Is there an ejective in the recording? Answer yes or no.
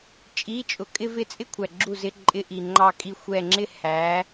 yes